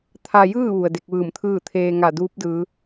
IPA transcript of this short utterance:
t̪ʰ a˧ j ɯː˥˨ ʋ u˩ ə̯ d e˧ k̚ ʋ ɯː˧˩ m t̪ʰ ɯː˥˨ t̪ʰ eː˧ ŋ a˧˩ d uː˧˥ p̚ d ɯː˩˧

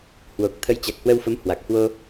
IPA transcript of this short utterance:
h w o˨˩ k̚ t̪ʰ ə˨˦ j t͡ɕ a˨˩ k̚ h w ə˧ w f ə˨˦ m h w a˨˩ k̚ h w o˧

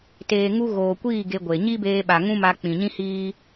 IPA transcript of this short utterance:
t eː˨ ŋ u˧ ɣ oː˨ kʷ iː˦˨ ɡ e˧ ɡʷ e˨ ɲ i˦ b eː˧ ɓ a˨ ŋ ũ˦ m a˧ k͡p ĩ˨ ɲ ĩ˦ h iː˦

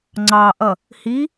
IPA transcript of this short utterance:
ŋ͡ǀ ɑ ʔ ʌ | h i

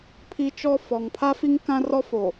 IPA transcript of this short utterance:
pʰ i˦ t͡ʃ ɔ˦ f ɔ˨ ŋ pʰ a˦ f i˦ ŋ k ã˦ r ɔ˦ f o˨

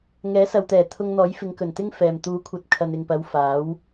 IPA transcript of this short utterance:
ŋ ɛː˨˥ s ɐ˨ w t̪ ɛː˨˩ t̪ʰ ʊ˧ ŋ n̪ ɔː˨˥ j f ɪ˨˧ ŋ k ɵ˨˩ n t̪ ɪ˥ ŋ f ɛː˨ m t̪ uː˨˥ kʷʰ ɐ˨ t̚ kʰ ɐ˨ n ɪ˨ ŋ p ɐ˨˧ w f aː˨˥ w

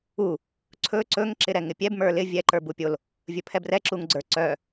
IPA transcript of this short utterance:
u | ǀʰ ɵ ǀ ɵ ŋ ǁ ɪ ɾ ɛ ŋ ɪ pʲ ɛ b m ə˞ l ɪ vʲ ɛ ǃ ə˞ b u pʲ o l | vʲ ɵ pʰ ɛ b r ɛ ǁ u ŋ ɡ͡ǀ ə˞ ǀ œ

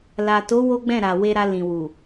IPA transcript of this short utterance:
l a˨ t o˨˦ w o˦ ɡ͡b ɛ̃˦˨ ɾ a˨ w e˧ ɾ a˧ l ĩ˨ w u˨

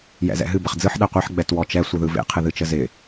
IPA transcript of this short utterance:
j ɛ̰ z ɛ̰ ɦ ɨ b ə χ d͡z ɯ ħ ɗ ɛ qʷ ɛ ħ ɡ͡b ɛ t w ɔ t͡ʃ ɛ sʷ ɨ ð ɯ v ḛ qʰ ɨ ð ɨ t͡ʃ ə z ɪ

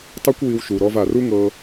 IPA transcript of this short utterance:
tˤ e˦ kʷ w i˧ w ʃ u˨ ɾ ɔ˧ v a˨ r u˦ ŋ ɤ˧

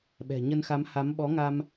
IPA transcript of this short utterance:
ɓ ɛ̤˨˩ ɲ ə˧ n x a˨˦ m h a˨˦ m ɓ ɔ˨˦ ŋ a˧ m

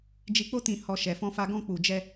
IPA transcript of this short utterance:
d͡ʒ i˧ k͡p o˦ t ĩ˧ h ɔ˧ ʃ ɛ˧ f ɔ̃˦ f a˦ ɡ ɔ̃˦ k͡p u˧ d͡ʒ ɛ˦

